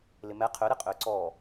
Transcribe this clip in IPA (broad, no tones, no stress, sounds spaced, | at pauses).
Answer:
l ɪ m ɛ qʰ ʏ ɾ ɪ qʼ ʏː ǀ ɔː